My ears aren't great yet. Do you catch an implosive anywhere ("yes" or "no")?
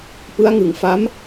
no